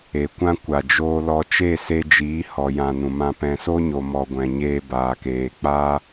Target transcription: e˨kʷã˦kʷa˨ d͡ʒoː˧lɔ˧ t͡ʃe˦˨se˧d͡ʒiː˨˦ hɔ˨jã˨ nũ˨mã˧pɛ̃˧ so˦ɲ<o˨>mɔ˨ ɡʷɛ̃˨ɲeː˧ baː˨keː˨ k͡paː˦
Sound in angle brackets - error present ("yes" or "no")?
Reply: no